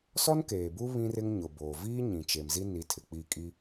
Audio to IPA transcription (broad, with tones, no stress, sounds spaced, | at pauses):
s ɔ˦ n k eː˨ b u˦ β ĩ˦ r ɪ˦ ŋ ɲ ʊ˨ b oː˨ v iː˦ ɲ ĩ˨ t͡ʃ e˨ m z i˦ n i˨˦ tʰ ɪ˨ k͡p i˦˨ kʼ i˦